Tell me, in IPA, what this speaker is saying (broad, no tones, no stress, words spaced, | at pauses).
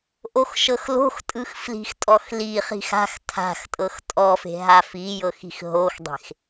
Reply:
ʔoxʃɤxlo̤xtʼɯx fli̤xtʼɔxliχi̤x a̤x tʰa̤xtʼɤx tʼɔfe̤ ɦafijɤx i̤xɦoxdˤe̤x